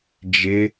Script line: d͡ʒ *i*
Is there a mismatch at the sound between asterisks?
yes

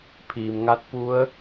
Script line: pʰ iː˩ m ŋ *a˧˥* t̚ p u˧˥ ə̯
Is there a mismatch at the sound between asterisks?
no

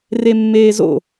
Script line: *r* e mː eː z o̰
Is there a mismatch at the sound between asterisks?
no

